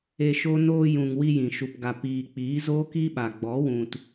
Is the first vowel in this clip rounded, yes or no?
no